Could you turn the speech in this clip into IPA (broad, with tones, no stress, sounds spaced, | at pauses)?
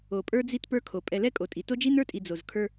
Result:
o˨ pʼ ə˞˦ d͡z i˦ t p ə˞˦ kʰ o˨ pʼ ɛ˨ l ɛ˦ kʼ o˨ tʼ i˨ t o˦ d͡ʒ i˦ n ə˞˦ tʼ i˨ d͡z o˨ z kʰ ə˞˦